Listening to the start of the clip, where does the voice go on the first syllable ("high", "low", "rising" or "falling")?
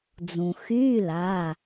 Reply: low